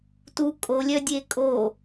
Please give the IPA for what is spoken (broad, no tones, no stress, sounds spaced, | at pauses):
t u kʼ o lʲ œ dʲ e kʼ o